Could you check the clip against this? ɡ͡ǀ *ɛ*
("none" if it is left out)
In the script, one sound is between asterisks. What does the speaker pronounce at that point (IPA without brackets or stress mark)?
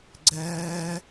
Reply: ɛ